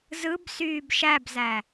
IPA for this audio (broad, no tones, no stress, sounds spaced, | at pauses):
z ɯ b s yː b ʃ æ b z æ